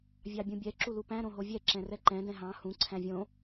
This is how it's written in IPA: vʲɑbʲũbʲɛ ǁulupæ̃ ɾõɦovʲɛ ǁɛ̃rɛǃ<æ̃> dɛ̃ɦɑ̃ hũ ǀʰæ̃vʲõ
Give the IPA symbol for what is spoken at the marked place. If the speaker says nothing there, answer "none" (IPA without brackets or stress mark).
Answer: ɛ̃